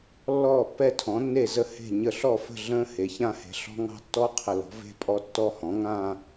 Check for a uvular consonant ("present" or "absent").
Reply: present